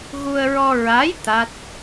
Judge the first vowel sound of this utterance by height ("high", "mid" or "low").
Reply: high